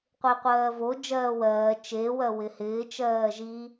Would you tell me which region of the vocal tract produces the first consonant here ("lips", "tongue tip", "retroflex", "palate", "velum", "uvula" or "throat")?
uvula